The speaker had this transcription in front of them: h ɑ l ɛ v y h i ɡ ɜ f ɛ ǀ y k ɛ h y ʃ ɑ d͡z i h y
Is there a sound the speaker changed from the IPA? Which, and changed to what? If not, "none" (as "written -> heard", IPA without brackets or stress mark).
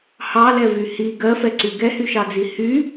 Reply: k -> ɡ